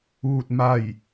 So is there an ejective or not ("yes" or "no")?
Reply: no